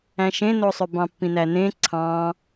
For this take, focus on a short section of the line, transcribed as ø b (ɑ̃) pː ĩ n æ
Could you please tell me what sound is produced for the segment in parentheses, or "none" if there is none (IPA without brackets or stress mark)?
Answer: ɑ̃